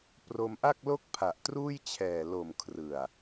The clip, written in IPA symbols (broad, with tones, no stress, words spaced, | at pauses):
pro˧mʔa˥˩k̚lo˥˩k̚ pʰa˨˩ʔtruː˥˩jt͡ɕʰɛː˨˩ lo˨˩m kʰrɯ˨˩a̯